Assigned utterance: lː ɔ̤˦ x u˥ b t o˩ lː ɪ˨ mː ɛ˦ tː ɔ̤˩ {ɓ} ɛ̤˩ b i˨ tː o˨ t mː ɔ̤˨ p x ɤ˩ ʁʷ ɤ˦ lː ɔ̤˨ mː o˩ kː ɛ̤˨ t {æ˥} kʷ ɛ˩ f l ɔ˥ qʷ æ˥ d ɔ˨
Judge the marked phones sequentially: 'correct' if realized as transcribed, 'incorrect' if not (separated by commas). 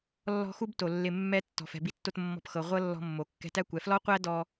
incorrect, incorrect